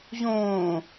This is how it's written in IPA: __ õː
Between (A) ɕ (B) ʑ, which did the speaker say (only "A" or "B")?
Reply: B